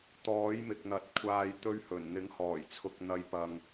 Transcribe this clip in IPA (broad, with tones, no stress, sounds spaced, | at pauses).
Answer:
t̪ ɔː˨˥ j m ɪ˨ k̚ n̪ ɐ˨ t̚ kʷʰ aː˨ j t̪ ɵ˧ ɥ h ɵ˨˩ n n̪ ɪ˨˥ ŋ h ɔː˨˩ j t͡sʰ ʊ˨ k̚ n̪ ɐ˨ j p ɐ˨ ŋ